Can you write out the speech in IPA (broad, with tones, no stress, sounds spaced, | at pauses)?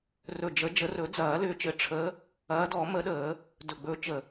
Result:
r ɵ˨˩ d͡ʒ ə˨˩˦ d͡ʒ ə˨˩˦ r ɵ˨˩˦ d͡z ɐː˨˩˦ l ʏː˨˦ t͡ʃ ɘ˨˩ ʈ͡ʂʰ əː˨˦ | ɐː˨˦ d ɔ˨˩˦ m ə˨˩˦ ɗ əː˨˩˦ | d ɵ˨˩ ɡ͡b ɵ˨˦ t͡ʃ ə˨˩